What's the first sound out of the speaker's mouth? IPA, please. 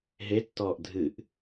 ɦ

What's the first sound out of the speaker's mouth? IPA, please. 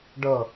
ɖ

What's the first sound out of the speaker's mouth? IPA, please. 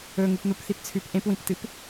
ɵ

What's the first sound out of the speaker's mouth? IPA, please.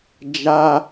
d͡ʒ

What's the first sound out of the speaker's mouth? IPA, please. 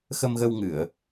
x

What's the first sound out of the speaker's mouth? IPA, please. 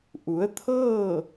ʔ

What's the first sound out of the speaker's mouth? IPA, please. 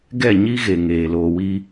ɡ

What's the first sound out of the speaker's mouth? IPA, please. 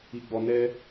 i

